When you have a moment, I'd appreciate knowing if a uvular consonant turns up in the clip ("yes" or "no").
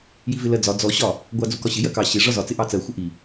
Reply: no